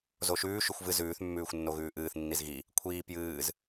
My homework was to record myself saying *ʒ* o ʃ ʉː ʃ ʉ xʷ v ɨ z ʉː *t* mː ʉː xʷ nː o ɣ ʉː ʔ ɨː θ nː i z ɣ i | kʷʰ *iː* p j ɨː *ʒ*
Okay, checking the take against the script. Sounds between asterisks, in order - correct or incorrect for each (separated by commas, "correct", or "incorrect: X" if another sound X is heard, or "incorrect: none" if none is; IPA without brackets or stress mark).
incorrect: z, incorrect: θ, correct, incorrect: z